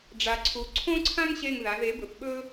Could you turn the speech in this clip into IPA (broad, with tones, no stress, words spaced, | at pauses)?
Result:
ɖ͡ʐa˧ǀʰu˧ ǀʰõ˦ǀʰã˦ŋ ɕe˦˨ŋða˨˦ ðe˨˦bɵ˨pɓɵ˦